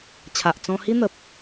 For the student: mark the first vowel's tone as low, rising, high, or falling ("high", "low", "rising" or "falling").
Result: low